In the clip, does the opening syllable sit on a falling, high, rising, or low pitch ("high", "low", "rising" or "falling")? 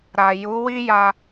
low